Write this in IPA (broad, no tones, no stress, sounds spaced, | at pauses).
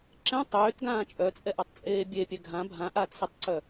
ǁ ɛ̃ tˤ øː t ɡ ãː t͡ʃʼ œ t͡sʼ ɛ ʔ a tˤ t͡sʼ eː bʲ e pʲ ɛ ɡʱ ã bʱ ã ʔ aː t s ɛ tˤ ǀ œ